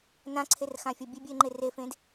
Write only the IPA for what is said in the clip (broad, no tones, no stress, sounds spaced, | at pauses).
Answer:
n ã ǀʰ e r x ã fʲ ɔ bʲ e bʲ ɨ ɪ̯ ŋ͡ǃ e r e f ẽ d